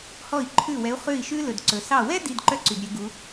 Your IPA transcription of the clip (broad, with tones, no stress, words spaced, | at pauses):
hɔ˥˨i̯ǃʰʉ˥˨wɛ˧˥u̯ χʉ˥˨i̯ʃʉ˥ lɵ˨dǀɵ˨sɑ˥˨ wɛ˥ di˧˥˧dǃœ˥ǀy˨d ɾʲø˥ɡu˧˥